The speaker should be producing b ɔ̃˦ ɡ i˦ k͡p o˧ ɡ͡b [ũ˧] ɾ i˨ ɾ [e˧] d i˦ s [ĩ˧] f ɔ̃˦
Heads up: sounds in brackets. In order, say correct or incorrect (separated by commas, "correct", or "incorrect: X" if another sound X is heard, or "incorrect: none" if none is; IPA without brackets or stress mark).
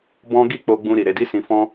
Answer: correct, correct, correct